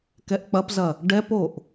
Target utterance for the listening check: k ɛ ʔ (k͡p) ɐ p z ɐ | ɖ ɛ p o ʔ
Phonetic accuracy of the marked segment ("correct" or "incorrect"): correct